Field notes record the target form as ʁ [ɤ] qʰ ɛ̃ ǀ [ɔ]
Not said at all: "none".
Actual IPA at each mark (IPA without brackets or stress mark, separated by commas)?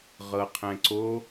ɤ, o